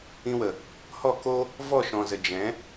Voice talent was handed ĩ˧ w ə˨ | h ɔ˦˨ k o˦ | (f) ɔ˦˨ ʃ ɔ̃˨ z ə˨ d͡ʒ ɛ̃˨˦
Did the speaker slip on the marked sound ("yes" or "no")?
yes